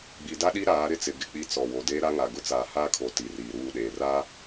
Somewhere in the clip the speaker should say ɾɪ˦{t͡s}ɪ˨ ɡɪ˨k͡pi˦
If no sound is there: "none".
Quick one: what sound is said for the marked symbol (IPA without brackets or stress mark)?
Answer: t͡s